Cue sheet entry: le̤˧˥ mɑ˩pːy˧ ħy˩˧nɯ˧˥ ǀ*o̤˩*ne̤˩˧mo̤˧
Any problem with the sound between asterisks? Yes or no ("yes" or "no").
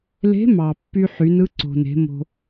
no